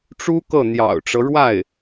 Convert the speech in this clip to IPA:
ʈ͡ʂu˥kɤ˥˩ n̪jɑ̰˨˩ʊ̯ʈ͡ʂɤ˦ɻwa˥˩ɪ̯

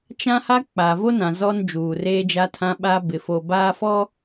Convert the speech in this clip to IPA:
t͡ʃã˦ha˦ k͡pa˨vo˦nã˨ zɔ˦nd͡ʒuː˨reː˦ d͡ʒa˦tʰã˦ɓa˦ bɪ˨fo˨ baː˦fɔ˦

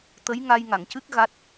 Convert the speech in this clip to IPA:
t̪ə˧˥jŋa˧jŋa˨˩˨ŋcɨ˦˥k̚ ɣa˦˥t̚

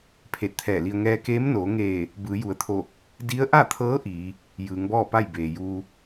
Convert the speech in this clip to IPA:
pʰeː˧˩t̚t̪ʰɛː˧˩li˧ə̯ ŋɛː˧keː˧˥mnoː˩˧ŋeː˧˩ | bɯː˩˧ju˩˧ə̯t̪ʰo˧˩ | di˧˥ə̯ʔa˥˨t̪ʰɤː˧˥ ʔiː˩˧ | jɯː˩˧ŋbɔː˥˨pa˥˨j beː˩juː˧

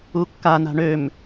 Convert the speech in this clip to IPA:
ukːa na̤ɳøm

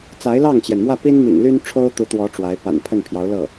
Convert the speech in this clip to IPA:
t͡sa˧˥ɪ̯lɑ˥˩ŋt͡ɕjɛ˩nmwä˥˩ pi˥nmḭ˨˩ŋly˥n ʈ͡ʂʰo˥ʊ̯t̪u˧˥t̪wɔ˧˥ ʈ͡ʂwa˧˥ɪ̯ pa̰˨˩npʰə˥˩npʰjɑ˧˥ʊ̯lɤ˥˩

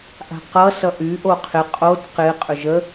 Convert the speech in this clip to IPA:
ʔa̤qʌ sʌʔy ʔoqʰɪ qʼod qɪ qʼʏʒə

